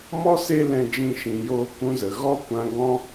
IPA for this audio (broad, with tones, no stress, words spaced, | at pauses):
mɔ˦ se˦ lɛ̃˦d͡ʒĩ˦ʃĩ˧ joː˧kũ˧zə˨ ɣɔ˦kʷã˧ ɡɔ̃˦